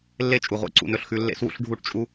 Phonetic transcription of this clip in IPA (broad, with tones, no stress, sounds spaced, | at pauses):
lː e˦ t͡ʃʼ u˨ ʁʷ ḛ˨˦ ǀ ṵ˧ n ɵ˧ ɬ x ʉ˧ lː ḛ˦ s w ṵ˦ ɬ ɖʱ u˦˨ ʈ t͡ʃʼ u˦